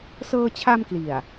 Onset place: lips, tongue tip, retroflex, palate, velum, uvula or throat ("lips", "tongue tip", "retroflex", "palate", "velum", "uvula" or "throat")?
tongue tip